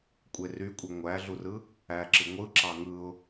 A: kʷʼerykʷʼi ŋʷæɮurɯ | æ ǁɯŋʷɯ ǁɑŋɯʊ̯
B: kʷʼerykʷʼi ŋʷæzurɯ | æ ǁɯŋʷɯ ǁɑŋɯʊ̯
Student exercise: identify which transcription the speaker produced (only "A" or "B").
A